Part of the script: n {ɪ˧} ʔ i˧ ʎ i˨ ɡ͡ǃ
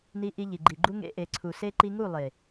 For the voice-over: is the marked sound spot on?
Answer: no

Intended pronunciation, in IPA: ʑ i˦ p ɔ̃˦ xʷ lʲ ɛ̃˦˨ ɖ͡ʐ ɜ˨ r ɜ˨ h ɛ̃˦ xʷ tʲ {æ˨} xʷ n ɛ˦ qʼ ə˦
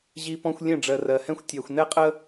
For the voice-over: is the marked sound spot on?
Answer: yes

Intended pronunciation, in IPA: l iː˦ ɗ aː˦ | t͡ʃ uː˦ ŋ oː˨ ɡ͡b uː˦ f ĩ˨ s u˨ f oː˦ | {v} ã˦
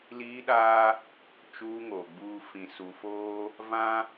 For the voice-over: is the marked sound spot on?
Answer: yes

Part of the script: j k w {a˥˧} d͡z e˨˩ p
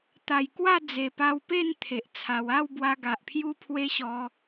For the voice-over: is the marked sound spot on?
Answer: yes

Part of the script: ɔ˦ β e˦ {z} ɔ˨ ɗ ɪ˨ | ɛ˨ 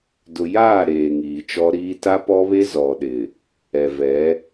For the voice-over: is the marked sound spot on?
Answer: yes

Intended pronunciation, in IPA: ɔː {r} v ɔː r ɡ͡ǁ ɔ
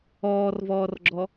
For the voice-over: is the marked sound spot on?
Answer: yes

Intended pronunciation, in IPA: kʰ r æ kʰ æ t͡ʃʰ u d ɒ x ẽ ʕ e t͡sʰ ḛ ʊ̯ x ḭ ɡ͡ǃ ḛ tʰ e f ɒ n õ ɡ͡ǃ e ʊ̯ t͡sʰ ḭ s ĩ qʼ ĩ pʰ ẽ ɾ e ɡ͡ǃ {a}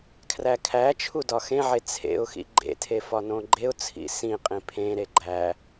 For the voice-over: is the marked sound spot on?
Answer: no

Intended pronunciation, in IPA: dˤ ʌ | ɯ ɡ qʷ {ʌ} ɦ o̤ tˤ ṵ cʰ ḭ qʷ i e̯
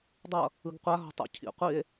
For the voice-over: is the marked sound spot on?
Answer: no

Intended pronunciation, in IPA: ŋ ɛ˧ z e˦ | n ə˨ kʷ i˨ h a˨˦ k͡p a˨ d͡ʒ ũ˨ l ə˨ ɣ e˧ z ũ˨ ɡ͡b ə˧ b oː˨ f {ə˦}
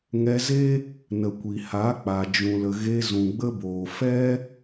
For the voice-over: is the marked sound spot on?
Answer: no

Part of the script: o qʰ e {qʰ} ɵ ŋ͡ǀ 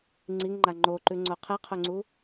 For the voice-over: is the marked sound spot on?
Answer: yes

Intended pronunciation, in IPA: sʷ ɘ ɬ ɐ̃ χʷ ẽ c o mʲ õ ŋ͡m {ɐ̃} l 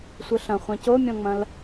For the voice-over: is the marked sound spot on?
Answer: yes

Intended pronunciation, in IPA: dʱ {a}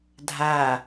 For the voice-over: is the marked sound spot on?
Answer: yes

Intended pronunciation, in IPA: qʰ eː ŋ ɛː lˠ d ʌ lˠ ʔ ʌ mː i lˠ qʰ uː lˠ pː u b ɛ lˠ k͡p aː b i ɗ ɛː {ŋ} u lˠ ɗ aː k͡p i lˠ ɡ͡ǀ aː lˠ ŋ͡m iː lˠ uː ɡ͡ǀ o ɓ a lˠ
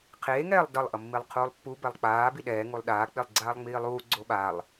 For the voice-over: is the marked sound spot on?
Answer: yes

